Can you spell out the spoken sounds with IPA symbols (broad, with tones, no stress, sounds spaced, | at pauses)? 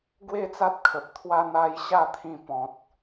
ɡ w e˥˧ t͡s a˦ t̚ kʰ ə˨ p̚ t̪ʰ w a˦ n̪ a˧ j ɕ a˥˧ t̪ʰ ĩ˧ p ɔ̃˨ t̚